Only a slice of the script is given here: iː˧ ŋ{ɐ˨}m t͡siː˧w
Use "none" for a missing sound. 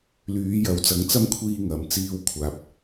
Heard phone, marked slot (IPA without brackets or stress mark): ɐ˨